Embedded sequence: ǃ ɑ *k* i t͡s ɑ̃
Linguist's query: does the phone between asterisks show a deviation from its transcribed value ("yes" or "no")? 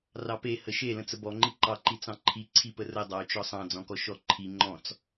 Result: yes